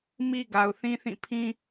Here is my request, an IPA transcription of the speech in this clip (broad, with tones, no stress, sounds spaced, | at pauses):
m i˦ ɡ a˨ ʊ̯ θ ĩ˦ θ ĩ˦˨ pʰ ĩ˦